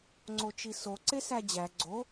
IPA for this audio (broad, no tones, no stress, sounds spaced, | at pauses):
ŋ͡ǀ o t͡ʃ i s o ǀ e s æ d͡ʑ æ ɡ͡ǀ o